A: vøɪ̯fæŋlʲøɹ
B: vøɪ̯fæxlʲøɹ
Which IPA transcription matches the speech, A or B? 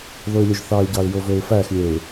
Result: B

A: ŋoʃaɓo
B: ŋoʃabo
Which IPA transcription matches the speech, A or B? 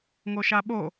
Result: A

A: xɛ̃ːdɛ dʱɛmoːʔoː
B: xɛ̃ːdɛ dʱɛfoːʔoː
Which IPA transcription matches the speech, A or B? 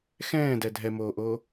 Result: A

